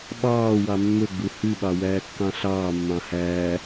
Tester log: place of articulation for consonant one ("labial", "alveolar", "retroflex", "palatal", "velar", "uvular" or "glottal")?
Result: labial